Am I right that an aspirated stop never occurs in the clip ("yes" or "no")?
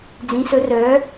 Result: yes